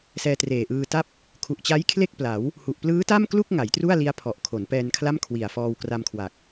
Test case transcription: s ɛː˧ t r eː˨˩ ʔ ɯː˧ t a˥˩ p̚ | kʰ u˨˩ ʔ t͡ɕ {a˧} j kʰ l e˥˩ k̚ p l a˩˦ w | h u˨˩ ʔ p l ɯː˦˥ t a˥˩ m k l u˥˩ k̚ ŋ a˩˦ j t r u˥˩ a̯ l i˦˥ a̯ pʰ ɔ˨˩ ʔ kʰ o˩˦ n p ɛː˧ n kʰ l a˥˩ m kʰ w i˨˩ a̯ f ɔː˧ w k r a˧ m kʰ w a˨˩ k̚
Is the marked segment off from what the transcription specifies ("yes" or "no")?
yes